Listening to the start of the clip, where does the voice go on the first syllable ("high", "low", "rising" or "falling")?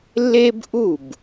high